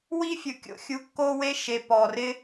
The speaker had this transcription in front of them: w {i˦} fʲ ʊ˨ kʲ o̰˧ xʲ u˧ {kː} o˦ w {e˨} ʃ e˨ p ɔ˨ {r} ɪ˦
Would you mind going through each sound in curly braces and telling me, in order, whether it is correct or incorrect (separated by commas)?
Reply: correct, correct, incorrect, correct